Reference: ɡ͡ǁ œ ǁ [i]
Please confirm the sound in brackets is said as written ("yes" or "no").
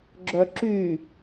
no